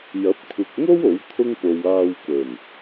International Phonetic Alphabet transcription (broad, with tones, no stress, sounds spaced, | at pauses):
j ɐ˨˥ p̚ kʷʰ ɪ˨ k̚ ŋ o˥ w o˨˥ w t̪ʰ ʊ˥ ŋ p o˨ w aː˧ w k ɵ˨˩ n